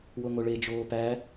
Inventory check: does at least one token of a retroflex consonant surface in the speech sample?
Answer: yes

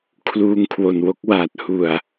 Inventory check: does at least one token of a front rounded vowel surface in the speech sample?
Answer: no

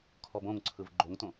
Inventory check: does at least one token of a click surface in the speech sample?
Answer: yes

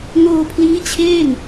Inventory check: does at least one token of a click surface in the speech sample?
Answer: no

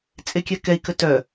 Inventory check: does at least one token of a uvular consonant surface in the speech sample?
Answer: no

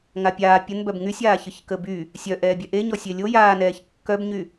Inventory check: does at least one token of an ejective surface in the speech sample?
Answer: no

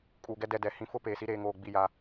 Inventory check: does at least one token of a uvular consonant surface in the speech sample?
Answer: no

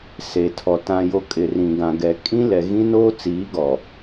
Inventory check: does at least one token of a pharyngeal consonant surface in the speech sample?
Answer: no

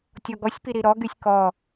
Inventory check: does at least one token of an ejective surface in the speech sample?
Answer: no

